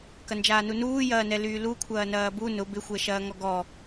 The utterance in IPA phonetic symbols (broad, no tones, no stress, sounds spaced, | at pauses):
k ɐ n d͡ʒ aː n u n uː j ɐː n ɛ l yː l u kʷʰ ɐː n ɐː b u n ʊ b ɪ xʷ ɛ ʃ ɐː ŋ ɔ ɡ ɔ